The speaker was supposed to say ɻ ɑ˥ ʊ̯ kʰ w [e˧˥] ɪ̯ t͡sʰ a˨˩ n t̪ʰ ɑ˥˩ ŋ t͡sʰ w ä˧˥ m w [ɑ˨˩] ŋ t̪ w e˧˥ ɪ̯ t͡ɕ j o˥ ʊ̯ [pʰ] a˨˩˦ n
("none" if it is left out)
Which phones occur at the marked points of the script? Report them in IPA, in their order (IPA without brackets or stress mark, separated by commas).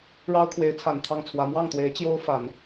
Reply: e˧˥, ɑ˥˩, f